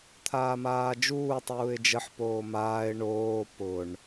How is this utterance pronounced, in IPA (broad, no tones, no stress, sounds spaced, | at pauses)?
t̪ʰ aː m aː d͡ʒ uː tˤ uː ɪ̯ d͡ʒ ə ħ p oː m aː ɪ̯ ɳ oː p ʊ ɳ